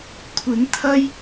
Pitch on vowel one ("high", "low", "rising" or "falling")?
rising